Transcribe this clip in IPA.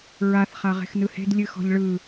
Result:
ɹaθ χaʁe̤xnɯhe̤d lʲɨxɔ̤ʎɭɯ

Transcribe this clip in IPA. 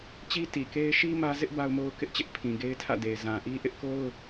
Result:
t͡ɕi˦ ti˨ke˦ɪ̯ ʃi˦ mä˦ zɪ˦ʔ ba˦ʊ̯mo˦ʊ̯ kɪ˦ʔt͡ɕɪ˦ʔ pʰĩ˨ɡe˦ɪ̯tʰä̰˦˨de˨ɪ̯ zã˨ʔi˦ ʔɪ˦ʔko˦ʊ̯

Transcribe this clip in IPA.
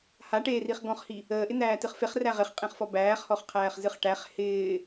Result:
haʈeːriχ ɡɔ̃χhi | əːʔɪn̪æːtɨχ feχræ ʁɪχqʼẽχfɔ bæːχhɔχqʰæːχzɨχ ʈæχ hɪː

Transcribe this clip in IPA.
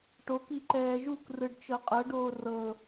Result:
ʈoki ǃɛːʒukrɯɖ t͡ʃɤqʼɤɖoː rɤ

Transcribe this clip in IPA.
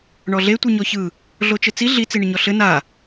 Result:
ɳɔɮe tʷɯɲɔçɯ | ɮot͡ʃɘt͡si ɮi t͡siɳɪɲɔɬɘ na

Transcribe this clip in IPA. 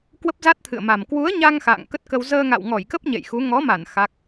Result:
kwə˦˥p̚za˦˥t̚t̪ʰɨ̰˧˨ə̯ma˨˩m kwu˨˦ə̯ɲa˧ŋ xa̰ː˧˨ŋkə˦˥t̚kə˧w zəː˧ŋa̰˧˨wŋɔ˧˩jkə˦˥p̚ ɲḛ˧˨jxu˨˦ ŋɔ˨˦ma˧˩n xa˦˥k̚

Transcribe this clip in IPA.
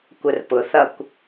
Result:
kʷərpʊθʌkʷ

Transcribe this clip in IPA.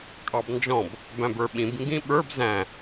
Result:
kʼɑbnd͡ʒɔ̃b | bæ̃bə˞ɓĩb ŋɡĩɓə˞b zæ̃

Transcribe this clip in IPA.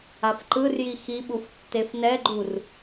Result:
afǃɯrji xiɓuf tːefnɛɡ͡ǃur

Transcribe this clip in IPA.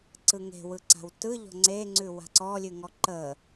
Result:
ǀɯŋe̤wɯ ǀa̤wtɯʎɔ̤ ŋ͡ǀeŋ͡ǀʉ wa̤ǀɔlʲʉŋɔ ǃə

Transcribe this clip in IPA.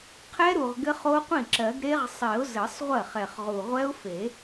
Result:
qʰɛ˦˥ɾu˨˩ʁ ɡɘ˦˥χo˦˥qʷĩ˥˩ǁɜ˨˩˦ɡ ɾe˦˥ʁsˤi˨˩˦ʊ̯zɘ˨˩˦sˤʁʷɜ˥˩χ ɛ˨˩χʁu˨˩ʁʷɛ˦˥ʊ̯ fe˨˩˦

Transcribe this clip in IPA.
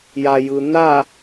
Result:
jajɯ n̪a

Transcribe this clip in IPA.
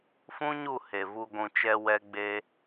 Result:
fũ˦ɲu˦˨ he˨vu˧ ɡʷũ˨t͡ʃɛ˧ wɛ˦ɡ͡be˦

